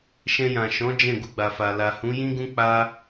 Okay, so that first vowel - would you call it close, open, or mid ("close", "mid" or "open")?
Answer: mid